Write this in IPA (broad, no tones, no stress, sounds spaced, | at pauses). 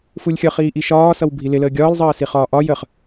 f u lʲ xʲ ʌ χ iː ʔ i ʃ ɒː s ʌ w bʱ i l ɪ l əː ɡʲ ɒː l zˤ ɜː s i χ ɒː ʔ ɒ j ə χ